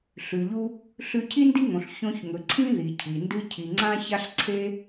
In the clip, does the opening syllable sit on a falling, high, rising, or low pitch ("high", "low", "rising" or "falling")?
low